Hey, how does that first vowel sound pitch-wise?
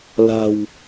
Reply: low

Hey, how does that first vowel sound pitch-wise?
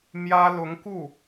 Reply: high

